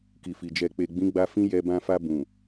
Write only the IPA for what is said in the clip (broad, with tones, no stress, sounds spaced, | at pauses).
k i˨ f i˨ d͡ʒ ɛ˨ k͡p e˨ ɡ͡b ĩ˨˦ ɡ͡b a˧ f ĩ˦ j ɛ˧ b ã˧ f a˧ b ũ˨